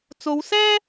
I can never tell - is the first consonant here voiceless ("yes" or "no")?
yes